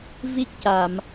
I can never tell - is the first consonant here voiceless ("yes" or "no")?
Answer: no